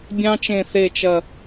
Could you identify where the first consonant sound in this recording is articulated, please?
labial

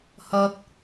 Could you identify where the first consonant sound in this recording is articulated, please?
glottal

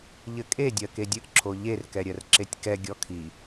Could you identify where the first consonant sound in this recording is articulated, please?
palatal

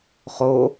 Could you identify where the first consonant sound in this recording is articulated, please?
uvular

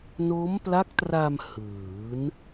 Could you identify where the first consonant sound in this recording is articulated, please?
alveolar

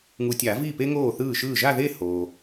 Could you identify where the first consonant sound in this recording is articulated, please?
velar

